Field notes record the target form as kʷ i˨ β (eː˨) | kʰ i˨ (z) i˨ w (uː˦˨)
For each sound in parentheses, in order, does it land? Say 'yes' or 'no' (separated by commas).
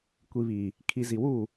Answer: no, yes, yes